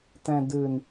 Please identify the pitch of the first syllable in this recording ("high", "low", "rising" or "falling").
low